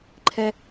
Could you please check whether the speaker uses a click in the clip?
yes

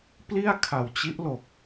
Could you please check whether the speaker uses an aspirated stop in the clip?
yes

